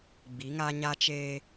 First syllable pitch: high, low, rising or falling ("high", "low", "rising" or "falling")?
rising